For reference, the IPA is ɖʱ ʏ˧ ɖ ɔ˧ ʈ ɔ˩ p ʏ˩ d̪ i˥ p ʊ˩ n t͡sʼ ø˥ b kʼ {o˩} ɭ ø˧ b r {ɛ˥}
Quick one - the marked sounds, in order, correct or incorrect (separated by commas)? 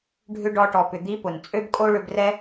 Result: incorrect, correct